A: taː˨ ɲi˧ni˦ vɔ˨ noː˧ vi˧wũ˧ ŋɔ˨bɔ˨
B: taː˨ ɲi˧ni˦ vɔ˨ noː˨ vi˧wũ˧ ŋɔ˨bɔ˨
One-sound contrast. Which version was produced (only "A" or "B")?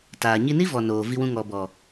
B